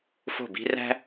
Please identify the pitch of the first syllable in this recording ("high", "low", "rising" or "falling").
falling